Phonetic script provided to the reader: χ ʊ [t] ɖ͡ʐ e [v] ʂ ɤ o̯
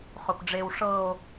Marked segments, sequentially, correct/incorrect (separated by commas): incorrect, incorrect